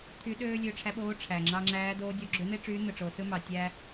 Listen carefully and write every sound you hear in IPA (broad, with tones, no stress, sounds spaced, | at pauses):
t̪ʰ y˧˥ ɗ øː˥ lʲ ø˧ ʈ͡ʂʰ æ˧˥ ɓ oː˧˥ ʈ͡ʂʰ æ˩ ŋ͡ǁ ɑ˧ ŋ͡ǁ æː˧˥ d oː˧˥ dʲ o˧ ɡ͡ǁ ø˧˥ n̪ e˥ ʈ͡ʂ yː˧˥ n̪ ɯ˩ ʈ͡ʂ o˩˧ s ɯ˥ m ɑ˩ tʲ æ˥